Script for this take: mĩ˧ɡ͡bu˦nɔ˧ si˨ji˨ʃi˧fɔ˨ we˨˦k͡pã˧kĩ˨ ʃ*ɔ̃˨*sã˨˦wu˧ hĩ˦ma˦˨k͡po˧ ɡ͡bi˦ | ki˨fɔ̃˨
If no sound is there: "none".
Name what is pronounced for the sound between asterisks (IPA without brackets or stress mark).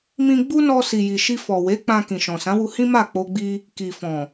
ɔ̃˨